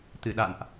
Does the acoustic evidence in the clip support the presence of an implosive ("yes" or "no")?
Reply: yes